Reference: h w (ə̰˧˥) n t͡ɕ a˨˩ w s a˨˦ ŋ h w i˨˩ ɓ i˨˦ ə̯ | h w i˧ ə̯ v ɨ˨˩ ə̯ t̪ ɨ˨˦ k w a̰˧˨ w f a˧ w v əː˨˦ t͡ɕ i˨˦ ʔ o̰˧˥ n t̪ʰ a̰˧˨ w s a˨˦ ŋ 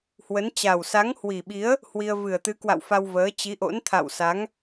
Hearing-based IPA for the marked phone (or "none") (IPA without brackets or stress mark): ə˨˦